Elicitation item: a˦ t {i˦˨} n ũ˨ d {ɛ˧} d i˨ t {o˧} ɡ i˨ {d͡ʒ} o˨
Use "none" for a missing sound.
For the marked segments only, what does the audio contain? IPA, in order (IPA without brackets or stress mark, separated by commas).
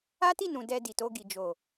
i˦˨, ɛ˨, o˧, d͡ʒ